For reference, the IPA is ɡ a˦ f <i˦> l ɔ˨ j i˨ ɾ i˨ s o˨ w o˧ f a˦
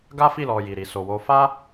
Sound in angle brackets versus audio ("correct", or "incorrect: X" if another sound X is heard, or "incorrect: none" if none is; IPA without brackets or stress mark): incorrect: i˦˨